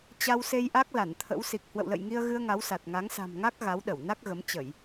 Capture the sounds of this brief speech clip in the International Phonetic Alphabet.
t͡ɕa˧wse˧jʔa˦˥k̚ la˧˩nt̪ʰə̰˧˥w si˨˩k̚ hwə̰˧˨wlə̰˧˨jŋi˧ə̯ɣɨ˧ə̯ ŋa˨˦wsa˨˩t̚ŋa˨˦ŋ sa̤˨˩mŋa˦˥k̚ ɣa˨˦wɗə˧˩wna˦˥k̚ɣə˨˦m t͡ɕə˧˩˨j

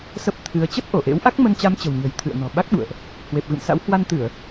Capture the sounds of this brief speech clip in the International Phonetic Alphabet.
sə˦˥p̚t̪ʰɨ˨˦ə̯ t͡ɕə˦˥t̚ʔo˧˩ʔḛ˧˥w ʔa˦˥k̚mə˧nt͡ɕa˨˦mt͡ɕə̤˨˩w ɲə̤˨˩jt̪ʰɨ̰˧˨ə̯nɔ̤˨˩ ɓa˦˥k̚ɓṵ˧˨ə̯ʔ | hwe˨˩p̚ɣɨ̰˧˨msa̰˧˥w hwa˧nt̪ɨ˧˩˨ə̯

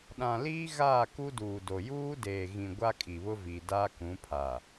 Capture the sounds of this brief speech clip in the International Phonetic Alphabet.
ɗã˨liː˦ɣaː˦˨ ku˦duː˨do˨ juː˦deː˨ɣĩ˨ ɡʷa˦kʼi˨βʊ˦vi˨ daː˦kũ˨˦pʰa˨

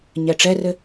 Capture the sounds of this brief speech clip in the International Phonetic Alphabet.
ɲɛʈ͡ʂɛrɘ

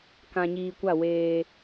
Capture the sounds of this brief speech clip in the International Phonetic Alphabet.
kã˨ɲiː˨kʷa˦˨ weː˦

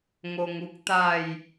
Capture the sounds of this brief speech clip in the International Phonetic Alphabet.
ŋo˧ŋu˦k̚t̪a˥˧j

